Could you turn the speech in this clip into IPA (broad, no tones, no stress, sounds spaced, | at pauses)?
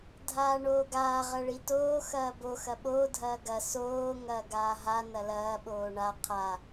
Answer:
dʱ aː ɳ oː ɡ aː ʁ ɐ ɭ i t oː x ɐː b o x ɐ ɓ oː dʱ ɐː ɡ ɐ s oː ŋ ɐː ɡ aː ɦ a n ɐ l ɐː ɓ oː ɳ a qʰ a